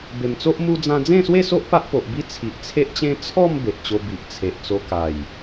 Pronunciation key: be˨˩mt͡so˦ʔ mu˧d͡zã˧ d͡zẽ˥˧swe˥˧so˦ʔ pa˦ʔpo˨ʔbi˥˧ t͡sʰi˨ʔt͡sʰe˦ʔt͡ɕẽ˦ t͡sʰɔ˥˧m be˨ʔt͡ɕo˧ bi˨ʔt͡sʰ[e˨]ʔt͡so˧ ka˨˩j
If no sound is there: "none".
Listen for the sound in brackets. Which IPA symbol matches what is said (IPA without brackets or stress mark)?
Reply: e˨